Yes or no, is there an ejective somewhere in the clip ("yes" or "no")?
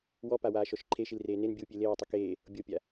no